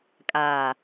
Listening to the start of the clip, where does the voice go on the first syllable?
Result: low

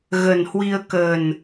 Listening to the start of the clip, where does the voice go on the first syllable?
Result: low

